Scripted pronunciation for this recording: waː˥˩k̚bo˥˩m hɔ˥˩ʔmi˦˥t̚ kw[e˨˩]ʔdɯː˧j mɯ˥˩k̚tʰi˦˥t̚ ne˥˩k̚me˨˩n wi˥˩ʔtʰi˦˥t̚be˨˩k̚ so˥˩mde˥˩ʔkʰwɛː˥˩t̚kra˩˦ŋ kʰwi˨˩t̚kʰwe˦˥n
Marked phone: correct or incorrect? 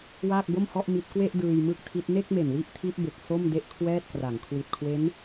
incorrect